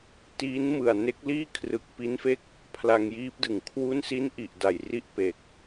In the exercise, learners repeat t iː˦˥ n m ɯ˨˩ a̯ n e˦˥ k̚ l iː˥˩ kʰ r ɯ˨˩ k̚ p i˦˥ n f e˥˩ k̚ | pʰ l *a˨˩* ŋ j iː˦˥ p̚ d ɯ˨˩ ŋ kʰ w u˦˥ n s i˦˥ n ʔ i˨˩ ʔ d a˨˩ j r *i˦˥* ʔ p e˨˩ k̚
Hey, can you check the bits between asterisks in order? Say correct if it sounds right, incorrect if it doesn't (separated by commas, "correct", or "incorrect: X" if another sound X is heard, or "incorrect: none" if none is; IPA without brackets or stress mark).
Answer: incorrect: a˧, correct